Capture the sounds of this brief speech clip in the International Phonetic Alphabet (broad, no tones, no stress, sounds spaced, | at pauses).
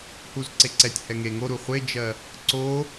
h u z ǀ e ǀ ɛ tʲ h ɛ ŋ e ŋ o ɾ u χʷ e d͡ʒ ɜ | ǀ o